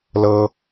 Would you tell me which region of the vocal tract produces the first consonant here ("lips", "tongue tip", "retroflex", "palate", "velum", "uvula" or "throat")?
tongue tip